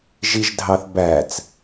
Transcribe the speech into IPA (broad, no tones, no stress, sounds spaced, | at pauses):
ʒ i ʒ dʱ ɑ θ b æ t͡s